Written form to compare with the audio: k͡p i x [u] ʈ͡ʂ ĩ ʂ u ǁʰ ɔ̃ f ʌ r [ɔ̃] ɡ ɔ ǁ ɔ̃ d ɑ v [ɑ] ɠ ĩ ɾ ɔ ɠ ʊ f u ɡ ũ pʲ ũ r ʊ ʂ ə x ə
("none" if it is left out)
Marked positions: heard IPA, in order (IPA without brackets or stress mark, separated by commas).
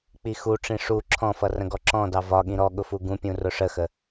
u, ə̃, ɒ